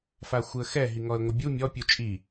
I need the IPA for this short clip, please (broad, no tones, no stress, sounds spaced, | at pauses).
f a xʷ ɨ ə̯ x ɛ ɦ i ŋ ɔ ə̯ ŋʷ ɘ bʲ u mʲ ɔ pʲ u t͡ʃʼ i